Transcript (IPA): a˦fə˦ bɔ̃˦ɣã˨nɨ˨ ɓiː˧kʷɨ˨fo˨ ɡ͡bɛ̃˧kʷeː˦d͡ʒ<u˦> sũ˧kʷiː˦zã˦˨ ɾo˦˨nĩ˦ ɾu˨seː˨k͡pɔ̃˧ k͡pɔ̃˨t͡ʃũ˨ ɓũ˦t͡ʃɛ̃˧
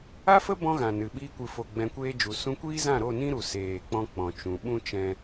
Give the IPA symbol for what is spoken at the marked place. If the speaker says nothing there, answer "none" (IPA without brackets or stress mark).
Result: u˨˦